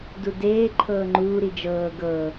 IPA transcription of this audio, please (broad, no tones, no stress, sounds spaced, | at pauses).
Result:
d u d eː ǃʰ ɤː ŋ͡ǃ uː ɾ i d͡ʒ ɤː ɡ ɤ